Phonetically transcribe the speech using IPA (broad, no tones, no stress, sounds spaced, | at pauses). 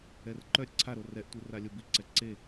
ɛ r ǃ œ ɾʲ ə ǀʰ a ɾ o r ɛ ʔ tʷ i r a lʲ o b i ǀ ɛ ǀ e